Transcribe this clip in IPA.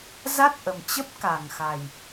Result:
z a˦˥ t̚ ʔ ə˨˩ m t͡ɕ ə˦˥ p̚ k a˨˩ ŋ x a˨˩ j

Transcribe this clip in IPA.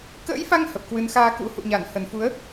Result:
k ə̰ː˧˥ j f a˧ ŋ h ə˨˩ p̚ k w ɨ˨˦ n x aː˧ k ṵ˧˥ h ṵ˧˨ ɲ a˧˩ n h ə˨˩ n f u˨˦ ə̯

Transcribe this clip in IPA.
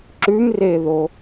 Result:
ǁ ʉ m r e ð o

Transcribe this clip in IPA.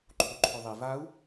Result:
ǃʰ u ǃʰ o ðˤ i v a u̯

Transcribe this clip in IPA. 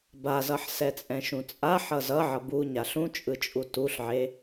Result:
b a z ʌ ħ s ɛ t͡sʼ ɛ̃ ʃ ũ t͡sʼ a ħ ʌ z ʌ ʕ ʌ b u ɲ a ɬ ũ t͡ʃʼ ɯ t͡ʃʼ u t u ɬ ʕ e

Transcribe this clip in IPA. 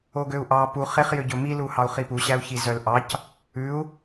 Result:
o ɡ ø u̯ ʔ ɑ p u χ e χ j ø ɟ ɵ m i l u h ɑ u̯ χ i p u ɕ æ u̯ ç i z œ l ʔ ɑ c | ʉ u̯

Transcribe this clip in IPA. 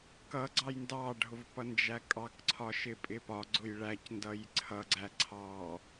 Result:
k ʌ ɡ͡ǀ ɑ j n d ɑ ɖʱ ʊ v p ʌ n d͡ʒ æ kʼ ɑ k ǀʰ ɒ ʃ ɪ pʼ ɪ p ɒ ɡ͡ǀ ʊ j ɭ æ c n d ʌ j ǀʰ ʌ ɡ͡ǀ æ ǀʰ ɑ

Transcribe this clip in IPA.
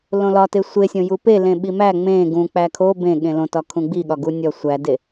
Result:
l õ l ɒ t e sʷ e sʲ õ j u p e l ẽ ɓ i m æ ŋ͡m ẽ ɡ ũ k͡p æ kʰ o b ẽ ɠ ẽ l õ t ɒ kʰ ũ ɡ͡b i ɠ ɒ ɡ u nʲ ɒ sʷ æ d e

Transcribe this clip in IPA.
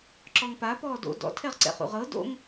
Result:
ǁ ɔ ŋ p a p ɔː d o̰ d ɔ̰ tʰ ɛ ʁ ǀ ɛ̰ χ ṵ ʁ ɤ d o̰ ŋ

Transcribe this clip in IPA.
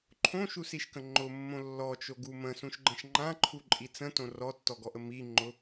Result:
ǃʰ õ ʃ u s i ʃ k ə̃ ŋ͡ǃ ʊ mː õ lː ɔ t͡ʃ o ɡ u m ə̃ s ũ ʃ ɡ͡ǃ ə̃ ʃ ŋ͡ǃ ã ǃʰ u ǃʼ i t͡s ə̃ t õ r ɔ tː ɔ ɡ ɔ ʔ ə m i ŋ͡ǃ ʊ

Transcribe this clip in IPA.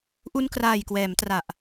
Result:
ʔ u˧ n k r aː˨˩ j k w ɛː˩˦ m t r a˨˩ ʔ

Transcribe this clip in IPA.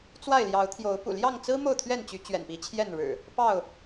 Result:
t͡s w a˥˨ ɪ̯ l j ɑ˨˦ ʊ̯ t̪ʰ j o˨˦ ʊ̯ p ṵ˨˩ l j ɑ˥˨ ŋ t͡s ɹ̩˦ m o˥˨ ʊ̯ t̪ʰ ɥ ɛ˥˨ n t͡ɕ y˨˦ t͡ɕ ɥ ɛ̰˨˩ n p i˨˦ t͡ɕʰ j ɛ˥˨ n ɻ ɻ̩˨˩ | p ɑ˥˨ ʊ̯

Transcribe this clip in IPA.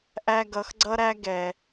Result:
ʔ æ˧ ɡ ʌ˨ x ɡ͡ǀ ʌ˦ ɾ æ˦ ɡ ɛ˨

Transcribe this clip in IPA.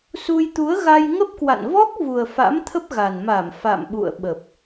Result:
s u˧ j t̪ u˨˦ ə̯ ɣ a˧ j ŋ ə˦˥ p̚ k w a̰˧˨ n v ɔ˦˥ k̚ v u˨˩ ə̯ f a̰˧˥ m t̪ʰ ə˦˥ p̚ ɣ a˨˩ n m a˧˩ m f a̰˧˨ m ɓ ṵ˧˨ ə̯ ɓ ə˨˩ p̚

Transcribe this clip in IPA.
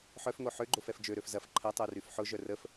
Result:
ħ œ f ŋ o ħ ø ɡ͡ǃ o f ɛ f d͡ʒ ø ɾ ø f z ɐ f ǃʰ ɐ tˤ o r y f ħ ʊ ʒ œ r ə f

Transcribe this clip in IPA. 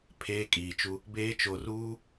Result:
pʰ eː˦ kʼ iː˨ t͡ʃ u˦ | b eː˦ t͡ʃ o˨ r uː˦

